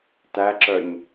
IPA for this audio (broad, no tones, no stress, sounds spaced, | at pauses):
t æ ǁ œ ɲ